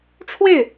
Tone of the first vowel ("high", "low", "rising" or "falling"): falling